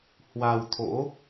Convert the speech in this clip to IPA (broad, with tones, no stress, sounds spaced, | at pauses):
h w a˧ w t̪ʰ o̰˧˥